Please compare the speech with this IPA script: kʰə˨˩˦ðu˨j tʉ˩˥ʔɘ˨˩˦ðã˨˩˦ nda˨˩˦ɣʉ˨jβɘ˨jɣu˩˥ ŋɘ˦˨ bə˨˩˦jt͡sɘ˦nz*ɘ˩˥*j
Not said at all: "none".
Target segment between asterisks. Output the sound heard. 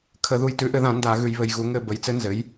ɘ˩˥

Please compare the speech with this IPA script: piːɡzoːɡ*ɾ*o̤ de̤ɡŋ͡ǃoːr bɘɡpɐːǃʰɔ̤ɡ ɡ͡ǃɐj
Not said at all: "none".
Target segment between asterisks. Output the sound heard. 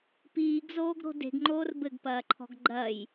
ɾ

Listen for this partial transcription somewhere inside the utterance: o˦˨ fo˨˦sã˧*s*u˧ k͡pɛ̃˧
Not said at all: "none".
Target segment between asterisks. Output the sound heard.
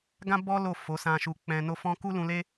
ʃ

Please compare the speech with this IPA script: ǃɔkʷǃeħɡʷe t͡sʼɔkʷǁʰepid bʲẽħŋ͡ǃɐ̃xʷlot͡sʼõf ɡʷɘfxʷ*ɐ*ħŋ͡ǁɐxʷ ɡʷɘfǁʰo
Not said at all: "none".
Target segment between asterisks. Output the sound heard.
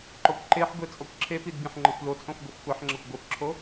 ɐ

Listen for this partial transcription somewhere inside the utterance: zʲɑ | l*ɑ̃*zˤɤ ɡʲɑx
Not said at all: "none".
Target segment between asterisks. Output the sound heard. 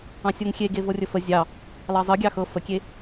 ɑ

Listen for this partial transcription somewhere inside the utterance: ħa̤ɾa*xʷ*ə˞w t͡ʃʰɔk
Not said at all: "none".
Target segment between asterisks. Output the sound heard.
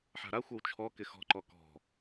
xʷ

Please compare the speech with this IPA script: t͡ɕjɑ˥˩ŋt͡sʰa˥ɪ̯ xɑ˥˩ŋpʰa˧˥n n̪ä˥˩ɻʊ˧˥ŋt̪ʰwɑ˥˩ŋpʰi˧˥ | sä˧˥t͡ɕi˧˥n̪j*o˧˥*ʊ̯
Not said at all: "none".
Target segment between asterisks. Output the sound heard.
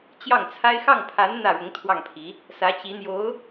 o˧˥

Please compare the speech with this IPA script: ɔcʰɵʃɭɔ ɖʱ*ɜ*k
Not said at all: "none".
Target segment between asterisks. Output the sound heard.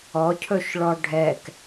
ɛ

